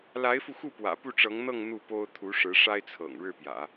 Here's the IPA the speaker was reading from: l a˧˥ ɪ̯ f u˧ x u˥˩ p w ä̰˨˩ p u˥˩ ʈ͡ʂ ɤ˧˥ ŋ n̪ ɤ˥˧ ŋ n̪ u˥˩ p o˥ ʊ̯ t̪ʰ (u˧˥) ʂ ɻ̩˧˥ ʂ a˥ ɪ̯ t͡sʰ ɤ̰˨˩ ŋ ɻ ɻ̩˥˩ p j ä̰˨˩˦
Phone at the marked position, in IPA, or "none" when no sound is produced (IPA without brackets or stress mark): u˧˥